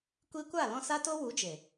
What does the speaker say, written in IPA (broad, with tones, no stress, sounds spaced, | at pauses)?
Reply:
kʷ i˧ kʷ a˦˨ l ɔ̃˧ s a˦ t o˦ w u˨˦ d͡ʒ e˨